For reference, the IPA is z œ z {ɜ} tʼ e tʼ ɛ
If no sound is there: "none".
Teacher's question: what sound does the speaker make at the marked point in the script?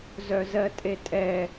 ɜ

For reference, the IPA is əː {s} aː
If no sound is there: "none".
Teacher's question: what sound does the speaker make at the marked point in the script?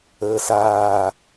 s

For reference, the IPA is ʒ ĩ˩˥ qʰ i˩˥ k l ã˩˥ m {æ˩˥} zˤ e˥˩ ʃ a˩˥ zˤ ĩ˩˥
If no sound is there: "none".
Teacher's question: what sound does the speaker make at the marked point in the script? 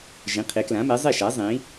ɛ˩˥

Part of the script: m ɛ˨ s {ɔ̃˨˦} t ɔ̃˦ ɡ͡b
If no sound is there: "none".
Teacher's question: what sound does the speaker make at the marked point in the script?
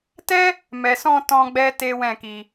ɔ̃˧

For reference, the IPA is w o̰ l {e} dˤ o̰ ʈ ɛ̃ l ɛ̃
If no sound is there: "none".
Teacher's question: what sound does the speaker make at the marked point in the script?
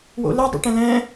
ɛ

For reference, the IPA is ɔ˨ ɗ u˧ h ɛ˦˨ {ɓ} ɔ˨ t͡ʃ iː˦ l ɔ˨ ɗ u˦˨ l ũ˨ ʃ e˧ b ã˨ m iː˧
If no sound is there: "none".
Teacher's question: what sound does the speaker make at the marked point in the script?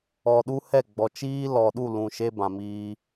ɡ͡b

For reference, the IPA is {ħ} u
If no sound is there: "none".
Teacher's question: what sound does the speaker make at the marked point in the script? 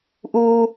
ʔ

